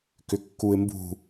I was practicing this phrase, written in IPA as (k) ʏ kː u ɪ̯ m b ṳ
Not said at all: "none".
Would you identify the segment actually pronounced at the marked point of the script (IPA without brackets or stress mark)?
k